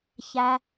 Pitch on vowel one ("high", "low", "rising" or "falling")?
low